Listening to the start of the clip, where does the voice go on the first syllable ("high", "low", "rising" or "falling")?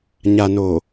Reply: low